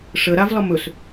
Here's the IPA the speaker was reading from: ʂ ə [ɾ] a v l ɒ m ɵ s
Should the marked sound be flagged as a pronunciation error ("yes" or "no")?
no